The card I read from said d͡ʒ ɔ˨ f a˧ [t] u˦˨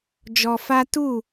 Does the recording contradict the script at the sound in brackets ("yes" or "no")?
no